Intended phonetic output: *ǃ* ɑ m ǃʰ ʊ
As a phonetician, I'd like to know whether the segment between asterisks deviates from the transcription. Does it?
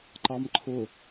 no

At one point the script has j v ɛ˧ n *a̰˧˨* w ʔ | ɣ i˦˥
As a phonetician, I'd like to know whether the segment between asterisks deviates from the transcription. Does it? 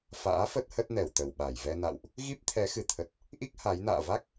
no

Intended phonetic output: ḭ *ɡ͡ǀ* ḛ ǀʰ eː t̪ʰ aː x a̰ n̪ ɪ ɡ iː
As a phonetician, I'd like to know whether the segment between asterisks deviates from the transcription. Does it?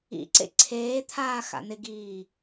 yes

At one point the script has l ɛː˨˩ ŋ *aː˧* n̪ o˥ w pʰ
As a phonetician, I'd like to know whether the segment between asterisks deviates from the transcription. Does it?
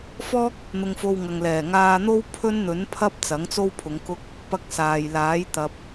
no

